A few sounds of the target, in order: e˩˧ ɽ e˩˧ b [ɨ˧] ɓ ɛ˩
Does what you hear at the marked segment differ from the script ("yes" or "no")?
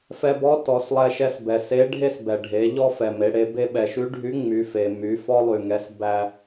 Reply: yes